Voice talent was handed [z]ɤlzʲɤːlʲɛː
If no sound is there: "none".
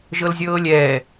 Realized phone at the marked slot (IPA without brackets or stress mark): ʒ